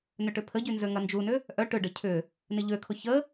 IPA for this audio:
n ʏ ʈ ʏ pʰ ə ɟ y n z ø ŋ ɐ n d͡ʒ u n ʏ | ʔ œ ʈ ʏ ɖ ə cʰ ʏ | n ɪ ʎ ø kʰ ʊ ç ə

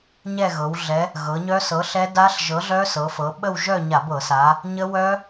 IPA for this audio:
ɲ ɛ˥˧ ɣ ɤ˩˧ w ɮ ɛ˨˥ | ɣ ɤ˩˧ ɲ œ˦˥ s ɤ˨˥ ɬ ɛ˦˥ d a˦˥ ɬ ʒ ɤ˨˥ ɮ œ˦˥ s ɤ˩˧ f ɤ˩˧ ɓ ə˥˧ w ʒ œ˥˧ ɲ a˧˩˧ b ɤ˧˩˧ s a˩˧ | ɲ ə˦˥ w œ˦˥

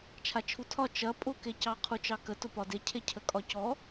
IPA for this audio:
t͡ʃʰ a t͡ʃʰ u tʰ ɒ t͡ʃ ɐ pʼ ʊ k e c ɑ qʰ u t͡ʃ ɑ k ə t ʊ p ɒ d e cʰ e cʰ ə kʼ ɒ c ɔ

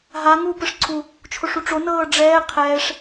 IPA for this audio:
ɦ a ŋ uː p ɯ ʂ ǀʰ u | t͡ʃʰ o ʂ u ʈ͡ʂ o n ɤː ɖ͡ʐ ɛː qʰ ɛː ʂ

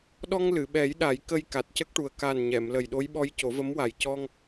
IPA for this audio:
ɗ ɔ˧ ŋ l ɨ˨˩˨ ɓ ɛ˨˩˦ j ɗ a˨˩˦ j k ə˧ j k a˨˩ t̚ c ə˦˥ k̚ ʈ u˨˩ ə̯ k a˨˩ n ɲ ɛ˨˩˨ m l ə˨˩ j ɗ o˧˥ j ɓ ɔ˧˥ j c o˨˩˦ v ə˧˥ m w a˨˩ j c ɔ˧ ŋ

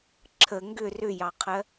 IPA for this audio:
ǁʰ ə ŋ ɡ ʏ r ʏ j ɑ qʰ ɜ

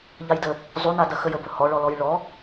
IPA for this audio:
ʎ a j d ə | zˤ u n a d ɐ x ə j ə b ɵ h ɔ ɭ ɔ l ɔ j ɭ ɔ

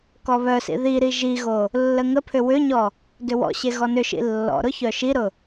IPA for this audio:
k ɔ β œ s ḭ ð i ɾ i ʒ i ɣ o | lː ə ŋ ə pʰ ʏ w ʏ ɲ ɔ | d ʏ w ɔ̰ ɕ e ɣ ɔ n ʏ ʃ ḭ lː ɔ̰ ɾ ʊ ç œ ʃ i ɾ ʊ

